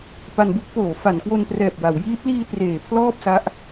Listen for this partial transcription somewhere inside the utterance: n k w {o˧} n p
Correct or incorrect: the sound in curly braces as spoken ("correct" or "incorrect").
correct